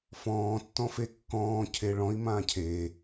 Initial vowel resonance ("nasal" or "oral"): nasal